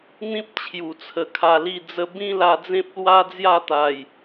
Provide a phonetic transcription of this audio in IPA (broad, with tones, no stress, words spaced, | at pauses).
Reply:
n̪ĩ˦p̚ t͡ɕʰju˨˩t͡sʰə˨˩ kʰa˧li˥˧d͡zə˦ bĩ˦la˧d͡zẽ˦p̚ lwa˦d͡zja˥˧t̪a˨˩j